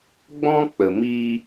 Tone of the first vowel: high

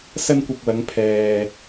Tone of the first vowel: high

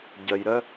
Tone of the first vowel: low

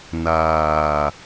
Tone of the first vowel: low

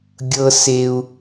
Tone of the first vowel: high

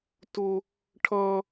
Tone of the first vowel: high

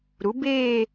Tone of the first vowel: rising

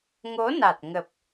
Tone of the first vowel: rising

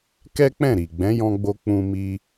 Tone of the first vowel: high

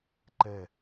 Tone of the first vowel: falling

